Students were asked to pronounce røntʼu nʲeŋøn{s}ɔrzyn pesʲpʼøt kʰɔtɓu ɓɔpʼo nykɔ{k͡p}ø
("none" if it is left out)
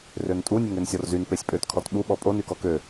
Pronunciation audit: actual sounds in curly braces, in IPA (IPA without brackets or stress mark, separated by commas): sʲ, k